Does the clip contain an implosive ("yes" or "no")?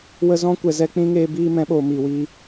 yes